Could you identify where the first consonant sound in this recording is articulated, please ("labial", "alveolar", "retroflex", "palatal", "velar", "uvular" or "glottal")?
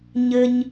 palatal